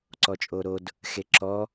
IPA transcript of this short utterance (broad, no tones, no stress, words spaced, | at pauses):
ǀɔt͡ʃʼoɾod | xeǁɔ